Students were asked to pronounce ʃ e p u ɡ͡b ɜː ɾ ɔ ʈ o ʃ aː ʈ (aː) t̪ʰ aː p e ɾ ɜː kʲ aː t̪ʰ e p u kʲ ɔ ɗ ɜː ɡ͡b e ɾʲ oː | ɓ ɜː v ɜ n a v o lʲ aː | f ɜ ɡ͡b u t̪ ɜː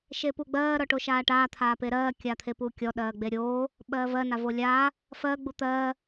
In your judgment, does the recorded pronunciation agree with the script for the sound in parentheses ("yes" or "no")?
yes